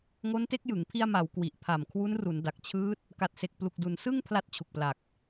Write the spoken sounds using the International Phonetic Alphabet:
ŋo˦˥nte˦˥k̚jɯ˩˦ŋ pʰi˧a̯ma˩˦w kwi˨˩ʔpʰa˨˩mkʰwu˦˥n ru˩˦nda˨˩k̚t͡ɕʰɯː˦˥t̚ | ka˨˩t̚se˨˩k̚ plu˨˩k̚du˨˩n sɯ˥˩ŋ pʰla˦˥t̚t͡ɕʰu˨˩k̚pla˨˩k̚

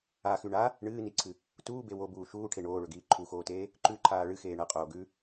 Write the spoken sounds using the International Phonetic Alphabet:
axʉ ɳa | ɳɨːniǀʰɨ | tuːbe wobuː ʃuːʈʰe ɳoːɭɵɡiː ǃʰuxoːteː | ǃʉǃʰaː ɭɨxeː ɳɐqʼoː ɡʉ

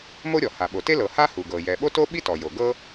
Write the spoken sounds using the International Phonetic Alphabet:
mo˥ɾʲɔ˩ ha˩ɓo˩te˥ lɤ˩ ha˥ hu˩ɡɤ˩ jɛ˩ɓo˥to˥ ɓi˥tɔ˩jo˩ ɡɤ˥

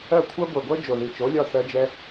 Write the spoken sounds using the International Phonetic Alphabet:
ɜ˦˨kʷʰɜ˦ ɡʷɛ˨ɡʷœ˦ d͡ʒo˨ði˨t͡ʃo˨˦lʲɒ˦˨ θɜ˦d͡ʒɛ˦

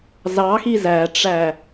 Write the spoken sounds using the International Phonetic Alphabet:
zɑxi zæʈ͡ʂæ

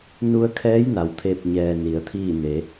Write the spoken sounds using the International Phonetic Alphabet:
nu˧ə̯kʰɛː˧˥jna˩wt̪ʰe˧˩p̚ ɲɛː˧ni˩˧ə̯t̪ʰiː˥˨ne˩˧

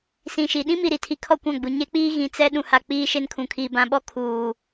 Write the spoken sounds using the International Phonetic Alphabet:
sĩ˨ʃi˨ ɗĩ˦mi˨ɾi˨tʰi˨ kʰɔ˦˨kʷã˦˨ɡ͡bu˨ ɲe˦k͡piː˦ ɣĩ˨ t͡sɛ˦ ɗũ˨ha˨ k͡piː˦ʃe˦nkʰũ˨kʰiː˨ bã˨ɓɔ˦ kʰuː˨

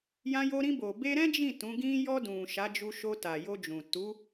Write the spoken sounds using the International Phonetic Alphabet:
jã˧jo˧ɾĩ˧bo˨ be˧ɾɛ̃˦ d͡ʒĩ˦˨ tũ˨˦ ɡĩ˧jɔ˧ dũ˨ ʃa˨˦d͡ʒu˧ʃo˧ ta˨jo˧d͡ʒũ˨ tu˨˦

